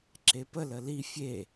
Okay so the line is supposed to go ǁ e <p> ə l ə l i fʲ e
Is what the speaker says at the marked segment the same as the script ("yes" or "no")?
yes